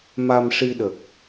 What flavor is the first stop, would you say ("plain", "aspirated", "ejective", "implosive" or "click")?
implosive